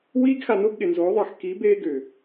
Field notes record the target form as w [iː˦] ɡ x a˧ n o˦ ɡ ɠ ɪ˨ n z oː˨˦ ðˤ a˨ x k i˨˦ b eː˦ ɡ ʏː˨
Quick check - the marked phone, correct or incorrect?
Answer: correct